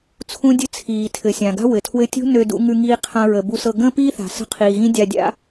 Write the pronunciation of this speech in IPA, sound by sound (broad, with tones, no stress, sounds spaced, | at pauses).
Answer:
t͡sʰ ũ˥ dʲ ɘ˥ t͡sʰ iː˩ tʰ ɘ˩ sʲ ã˩ ɡ a̤˥ w ɘ˩ tʰ w ɘ˧ tʲ ṳ˥ n ø˧ d ṵ˧ ŋ ʉ˧ ŋ iː˧ qʰ ã˧ ɹ ə˩ b u˧ s ɤ˧ ɡ ə̃ː˥ p iː˥ θ a̤˩ s ə̤˧ qʰ iː˩ ɣ ĩ˥ dʲ a˧ dʲ a̰˥